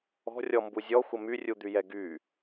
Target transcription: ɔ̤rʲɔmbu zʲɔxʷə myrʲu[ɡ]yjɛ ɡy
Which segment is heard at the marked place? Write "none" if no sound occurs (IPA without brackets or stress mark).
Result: d̪